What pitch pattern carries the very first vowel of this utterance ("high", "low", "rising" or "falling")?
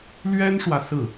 high